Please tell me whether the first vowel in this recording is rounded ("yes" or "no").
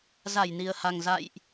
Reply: no